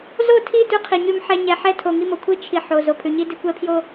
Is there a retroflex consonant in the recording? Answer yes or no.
no